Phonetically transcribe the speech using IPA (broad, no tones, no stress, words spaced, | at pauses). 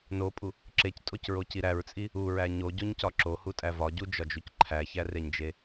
nopʼu | ǁectʼocɹoci ɾæɹt͡sʼi | uɹæ ɲoɟoɲcɒ ǁohutʼæ vɒɟud͡ʒɒd͡ʒuc ǃʰæçæreɲd͡ʒe